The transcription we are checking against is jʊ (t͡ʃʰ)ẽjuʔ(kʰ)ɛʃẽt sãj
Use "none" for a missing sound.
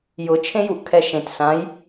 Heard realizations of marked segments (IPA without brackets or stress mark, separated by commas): t͡ʃʰ, kʰ